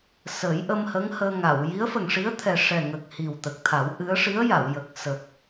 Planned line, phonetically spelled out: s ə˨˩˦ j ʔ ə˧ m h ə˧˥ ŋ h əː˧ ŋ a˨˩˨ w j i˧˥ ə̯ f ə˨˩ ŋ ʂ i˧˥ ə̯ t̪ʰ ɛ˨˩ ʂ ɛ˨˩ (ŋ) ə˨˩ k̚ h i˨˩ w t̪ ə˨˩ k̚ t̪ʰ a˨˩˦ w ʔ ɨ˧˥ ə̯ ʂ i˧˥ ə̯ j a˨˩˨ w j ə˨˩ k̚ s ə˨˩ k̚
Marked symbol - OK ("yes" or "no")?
yes